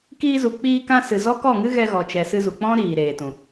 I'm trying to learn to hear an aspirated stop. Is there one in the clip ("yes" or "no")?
no